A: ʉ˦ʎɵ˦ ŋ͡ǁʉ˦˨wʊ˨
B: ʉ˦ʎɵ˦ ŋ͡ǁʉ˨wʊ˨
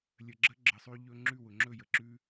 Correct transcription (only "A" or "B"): A